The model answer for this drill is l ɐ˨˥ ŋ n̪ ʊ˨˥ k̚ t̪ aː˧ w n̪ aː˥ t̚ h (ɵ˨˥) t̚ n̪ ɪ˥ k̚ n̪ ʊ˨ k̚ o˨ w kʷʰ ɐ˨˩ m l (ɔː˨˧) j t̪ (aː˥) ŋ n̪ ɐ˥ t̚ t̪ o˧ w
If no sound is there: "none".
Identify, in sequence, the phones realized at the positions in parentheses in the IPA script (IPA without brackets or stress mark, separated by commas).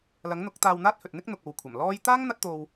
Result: ɵ˨, ɔː˥, aː˥